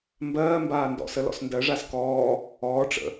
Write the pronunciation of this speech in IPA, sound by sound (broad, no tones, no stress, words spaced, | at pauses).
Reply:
mbɜː mbaːndɔ̰sə lɔ̰sndɜʐas kɔː | ɔːʈ͡ʂə̰